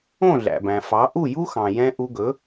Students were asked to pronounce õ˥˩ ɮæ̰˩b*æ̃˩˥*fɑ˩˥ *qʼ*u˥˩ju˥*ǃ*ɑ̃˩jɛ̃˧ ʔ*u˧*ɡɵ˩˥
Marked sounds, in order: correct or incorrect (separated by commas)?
incorrect, incorrect, incorrect, correct